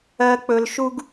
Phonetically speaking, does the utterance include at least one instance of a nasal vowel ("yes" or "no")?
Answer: no